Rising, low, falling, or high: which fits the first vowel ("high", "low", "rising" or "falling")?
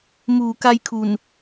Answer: low